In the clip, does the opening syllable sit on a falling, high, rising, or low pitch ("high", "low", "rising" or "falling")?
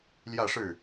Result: falling